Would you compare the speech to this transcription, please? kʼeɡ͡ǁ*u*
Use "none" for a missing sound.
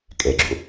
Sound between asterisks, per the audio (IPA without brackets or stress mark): ṵ